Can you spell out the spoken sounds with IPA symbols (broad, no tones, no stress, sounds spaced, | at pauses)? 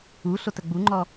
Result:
u ɬ o t ə ɡ͡b u ŋ͡ǃ ɔ